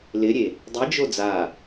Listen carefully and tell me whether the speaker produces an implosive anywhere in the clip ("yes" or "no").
no